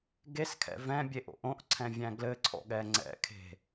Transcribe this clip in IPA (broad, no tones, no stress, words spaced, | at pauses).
ɡeskʰɛ̰ vɛ̃bʲeʔo̰ʔ õʔǀʰɛ̃vʲæ̃ ɡlɘǀʰɔ̰ɠɛ ŋ͡ǀɛ̰kʰe̤